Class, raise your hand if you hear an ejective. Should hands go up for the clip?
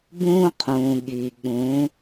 no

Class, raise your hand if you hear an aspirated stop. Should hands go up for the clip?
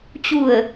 no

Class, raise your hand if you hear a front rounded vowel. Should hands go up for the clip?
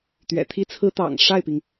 no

